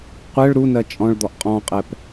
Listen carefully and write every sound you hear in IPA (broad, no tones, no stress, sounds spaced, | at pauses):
qʷ ɛ ɭ ɾ u n ɜ t͡ʃʼ ɔ̃ ɭ d̪ ɔ ʔ qʼ ɔ̃ qʼ ɛ p